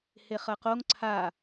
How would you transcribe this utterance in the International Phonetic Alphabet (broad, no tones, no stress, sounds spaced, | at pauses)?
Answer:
h e χ ɐ q o ŋ ǀʰ a